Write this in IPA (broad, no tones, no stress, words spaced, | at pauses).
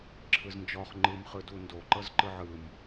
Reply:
ǁʰɯznd͡ʒɔχ ŋ͡ǃɯm χɯdundo ǃɤzǃɯʕɯm